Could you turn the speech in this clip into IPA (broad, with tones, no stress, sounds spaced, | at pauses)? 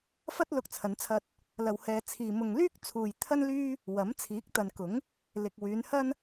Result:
f ɐ˥ t̚ l ʊ˧ k̚ t͡sʰ ɐ˨˧ n t͡sʰ ɐ˧ t̚ | l ɐ˨ w h ɛː˨ t͡sʰ iː˨ m ʊ˨ ŋ l yː˥ k̚ t͡sʰ uː˨ j t̪ʰ ɐ˥ n l yː˥ | w ɐ˨˥ m t͡sʰ iː˨˥ k̚ t̪ ɐ˨ n k ʊ˨˥ ŋ | l ɪ˨ k̚ w yː˨˧ n h ɐ˥ n